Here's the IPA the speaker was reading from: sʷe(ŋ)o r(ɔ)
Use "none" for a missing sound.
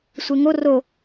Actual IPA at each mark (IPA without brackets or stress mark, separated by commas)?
ŋ, o